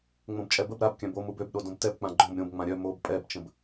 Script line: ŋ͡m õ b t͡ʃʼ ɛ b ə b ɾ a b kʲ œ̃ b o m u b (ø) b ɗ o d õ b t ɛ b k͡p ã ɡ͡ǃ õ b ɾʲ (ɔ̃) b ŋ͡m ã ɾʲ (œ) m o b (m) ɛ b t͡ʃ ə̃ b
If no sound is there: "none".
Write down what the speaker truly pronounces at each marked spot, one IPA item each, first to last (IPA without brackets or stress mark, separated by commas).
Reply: ø, õ, œ, pʼ